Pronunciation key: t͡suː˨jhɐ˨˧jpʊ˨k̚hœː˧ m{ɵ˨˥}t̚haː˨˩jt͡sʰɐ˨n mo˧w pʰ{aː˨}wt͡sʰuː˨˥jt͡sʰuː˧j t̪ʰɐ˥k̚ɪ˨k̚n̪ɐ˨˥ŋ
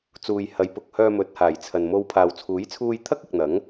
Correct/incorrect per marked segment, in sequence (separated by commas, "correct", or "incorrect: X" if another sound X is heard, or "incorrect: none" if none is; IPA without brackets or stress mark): correct, correct